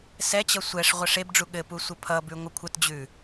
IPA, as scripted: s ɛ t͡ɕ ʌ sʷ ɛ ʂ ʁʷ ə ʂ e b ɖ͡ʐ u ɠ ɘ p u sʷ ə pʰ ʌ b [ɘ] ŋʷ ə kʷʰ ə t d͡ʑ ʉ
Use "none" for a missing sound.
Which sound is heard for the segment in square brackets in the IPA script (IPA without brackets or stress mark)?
ʉ